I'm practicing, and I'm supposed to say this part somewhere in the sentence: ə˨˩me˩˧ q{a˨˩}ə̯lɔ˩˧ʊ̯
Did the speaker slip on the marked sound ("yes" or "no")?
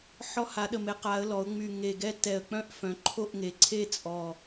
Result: yes